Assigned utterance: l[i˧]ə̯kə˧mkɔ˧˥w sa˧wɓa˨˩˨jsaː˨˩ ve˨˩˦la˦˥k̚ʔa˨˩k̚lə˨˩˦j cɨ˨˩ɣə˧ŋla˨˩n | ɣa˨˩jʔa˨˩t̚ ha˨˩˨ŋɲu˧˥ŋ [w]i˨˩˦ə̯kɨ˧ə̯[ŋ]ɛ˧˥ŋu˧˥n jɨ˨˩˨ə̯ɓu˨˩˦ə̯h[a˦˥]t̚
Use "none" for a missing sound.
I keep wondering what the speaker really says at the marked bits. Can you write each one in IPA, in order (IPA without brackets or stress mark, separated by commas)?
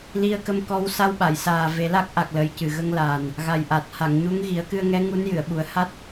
i˧, ɣ, ŋ, a˦˥